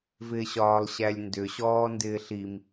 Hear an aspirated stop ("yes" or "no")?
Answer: no